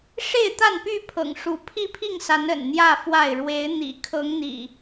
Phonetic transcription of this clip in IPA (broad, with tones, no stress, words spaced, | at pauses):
ʂe˥˨ɪ̯t̪a˥˨npy˥˨pʰɤ̰˨˩ŋ ʂu˨˦pʰi˥˨pʰi˥˨ŋsa˨˦n ə̰˨˩nn̪jä˥˨fwa˥˨ɪ̯ ɻwe˨˦ɪ̯n̪ḭ˨˩ kʰɤ˨˦ŋn̪ḭ˨˩